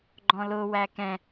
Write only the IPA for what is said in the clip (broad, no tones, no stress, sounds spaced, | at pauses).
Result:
ɡ͡ǃ ɔ̃ l ʊ w æ k ɛ̃